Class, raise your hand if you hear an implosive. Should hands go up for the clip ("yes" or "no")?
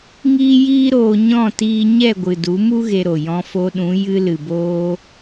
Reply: yes